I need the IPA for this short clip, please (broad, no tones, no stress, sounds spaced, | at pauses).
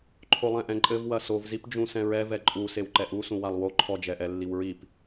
ǃʰ o lˠ ɛ̃ ʔ ɛ̃ ǃʼ ɘ v w ɐ s o v z i p d͡ʒ ũ s ɛ̃ ɹ ɛ v ɛ ǃʼ u s e w ǃ ɛ ʔ u s ũ w a lˠ w o ǃʰ ɔ d͡ʒ ɛ ʔ ɛ lː i w ɹ i p